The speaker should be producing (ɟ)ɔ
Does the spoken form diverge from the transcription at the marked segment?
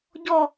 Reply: no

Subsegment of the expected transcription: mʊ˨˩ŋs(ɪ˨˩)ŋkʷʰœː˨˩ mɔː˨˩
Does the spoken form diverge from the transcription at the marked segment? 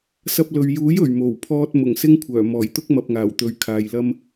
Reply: yes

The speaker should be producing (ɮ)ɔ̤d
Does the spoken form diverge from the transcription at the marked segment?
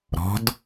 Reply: yes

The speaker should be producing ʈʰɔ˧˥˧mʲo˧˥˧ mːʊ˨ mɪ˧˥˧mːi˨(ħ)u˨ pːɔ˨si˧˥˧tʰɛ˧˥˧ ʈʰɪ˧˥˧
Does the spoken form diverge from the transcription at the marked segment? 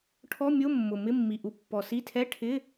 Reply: yes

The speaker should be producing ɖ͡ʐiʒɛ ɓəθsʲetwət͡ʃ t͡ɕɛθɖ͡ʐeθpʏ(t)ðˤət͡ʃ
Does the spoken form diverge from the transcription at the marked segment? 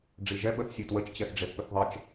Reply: yes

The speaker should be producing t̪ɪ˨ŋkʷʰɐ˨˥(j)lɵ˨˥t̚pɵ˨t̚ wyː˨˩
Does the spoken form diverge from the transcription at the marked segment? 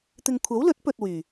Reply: yes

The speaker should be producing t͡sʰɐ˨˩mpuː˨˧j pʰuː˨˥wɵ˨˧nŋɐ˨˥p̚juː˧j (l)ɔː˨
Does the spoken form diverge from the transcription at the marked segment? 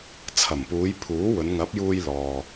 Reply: no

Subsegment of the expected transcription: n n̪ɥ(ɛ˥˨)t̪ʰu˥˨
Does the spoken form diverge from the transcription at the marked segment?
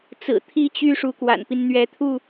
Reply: yes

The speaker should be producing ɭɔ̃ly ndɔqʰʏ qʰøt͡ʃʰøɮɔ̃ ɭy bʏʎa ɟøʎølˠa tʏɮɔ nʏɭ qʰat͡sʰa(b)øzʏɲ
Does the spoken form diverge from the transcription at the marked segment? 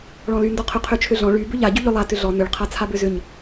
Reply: no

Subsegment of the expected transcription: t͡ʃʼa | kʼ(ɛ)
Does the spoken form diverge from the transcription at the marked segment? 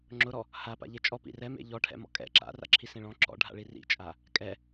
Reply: no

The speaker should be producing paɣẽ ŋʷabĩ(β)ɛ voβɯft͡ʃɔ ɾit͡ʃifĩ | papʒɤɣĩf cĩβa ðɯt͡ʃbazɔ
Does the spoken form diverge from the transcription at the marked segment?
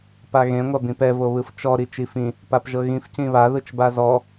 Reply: yes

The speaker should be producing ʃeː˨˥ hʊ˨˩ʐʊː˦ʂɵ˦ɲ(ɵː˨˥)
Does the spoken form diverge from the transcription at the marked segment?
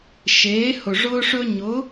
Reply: yes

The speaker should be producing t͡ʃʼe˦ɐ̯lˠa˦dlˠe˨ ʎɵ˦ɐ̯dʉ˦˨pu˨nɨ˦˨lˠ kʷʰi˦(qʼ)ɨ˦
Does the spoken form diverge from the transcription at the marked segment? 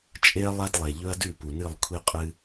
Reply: no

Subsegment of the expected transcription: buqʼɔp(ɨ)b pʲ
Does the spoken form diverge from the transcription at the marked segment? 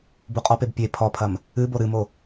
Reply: yes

